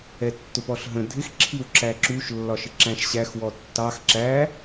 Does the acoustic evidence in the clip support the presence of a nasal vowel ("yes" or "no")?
yes